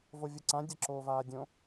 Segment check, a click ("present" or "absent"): present